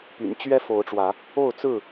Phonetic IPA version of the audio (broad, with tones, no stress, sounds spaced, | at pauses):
p y̰˨˩ n t͡ɕ ɥ ɛ˦ f o˨˦ ʊ̯ ʈ͡ʂ w ä˨˦ | o˥˨ ʊ̯ t͡s ɹ̩˥˨